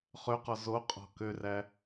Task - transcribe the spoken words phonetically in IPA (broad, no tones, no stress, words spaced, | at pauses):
χøqɔ zoqʼɔ̤ køræ